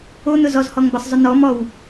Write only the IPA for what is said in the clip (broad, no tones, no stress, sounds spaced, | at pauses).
o n̪ ʊ z ɔ z h ɔ ŋ b ʌ sˤ zˤ ʊ n̪ ɔ m ɔ w